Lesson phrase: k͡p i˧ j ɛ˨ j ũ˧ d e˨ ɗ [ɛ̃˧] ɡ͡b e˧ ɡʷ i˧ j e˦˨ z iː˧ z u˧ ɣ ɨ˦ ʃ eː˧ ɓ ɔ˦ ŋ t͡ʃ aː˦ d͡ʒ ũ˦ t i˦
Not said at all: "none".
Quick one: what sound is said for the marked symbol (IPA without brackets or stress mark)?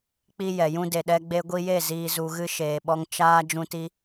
ɛ˧